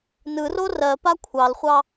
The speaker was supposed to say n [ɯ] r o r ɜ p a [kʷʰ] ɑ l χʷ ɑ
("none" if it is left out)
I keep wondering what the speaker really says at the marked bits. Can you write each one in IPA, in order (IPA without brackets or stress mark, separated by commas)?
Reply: ɯ, kʷʰ